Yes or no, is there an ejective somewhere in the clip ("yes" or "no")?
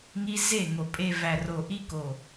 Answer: yes